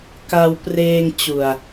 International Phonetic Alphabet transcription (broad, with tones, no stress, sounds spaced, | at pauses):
k a˧ w p r eː˧ ŋ t͡ɕ u˨˩ a̯